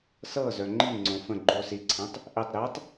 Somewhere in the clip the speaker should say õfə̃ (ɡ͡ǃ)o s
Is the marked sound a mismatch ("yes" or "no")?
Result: no